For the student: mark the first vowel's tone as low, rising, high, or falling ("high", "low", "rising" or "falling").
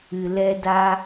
low